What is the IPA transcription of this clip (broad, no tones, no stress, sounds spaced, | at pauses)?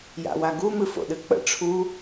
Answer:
j a̰ w a ɡ u m ɨ f o̰ ɗ ɨ k͡p ə̰ ʈ͡ʂʰ u